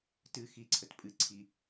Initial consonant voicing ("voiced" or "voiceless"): voiceless